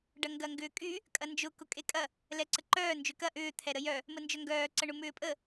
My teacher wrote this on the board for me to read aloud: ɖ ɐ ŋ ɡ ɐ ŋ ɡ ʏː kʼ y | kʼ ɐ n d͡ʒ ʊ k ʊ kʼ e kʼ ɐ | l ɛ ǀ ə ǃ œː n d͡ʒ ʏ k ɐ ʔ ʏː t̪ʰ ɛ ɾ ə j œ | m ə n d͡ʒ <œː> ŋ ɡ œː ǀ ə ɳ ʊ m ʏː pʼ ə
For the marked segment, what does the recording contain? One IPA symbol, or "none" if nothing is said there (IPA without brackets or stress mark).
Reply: œ